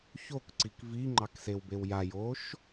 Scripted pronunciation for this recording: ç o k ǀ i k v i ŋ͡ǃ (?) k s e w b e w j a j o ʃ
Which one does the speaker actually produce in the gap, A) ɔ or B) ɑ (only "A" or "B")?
B